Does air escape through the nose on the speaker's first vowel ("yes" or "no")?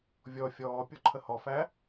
no